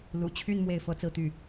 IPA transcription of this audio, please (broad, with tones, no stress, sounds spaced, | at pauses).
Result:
l ṵ˨˩ t͡ɕʰ y˥˧ n m w e˥˩ ɪ̯ f ɤ˥ t͡s ɹ̩˥˧ t̪ y˥˩